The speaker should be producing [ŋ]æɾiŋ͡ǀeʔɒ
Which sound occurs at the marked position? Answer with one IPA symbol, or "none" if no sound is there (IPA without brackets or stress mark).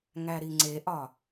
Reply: ŋ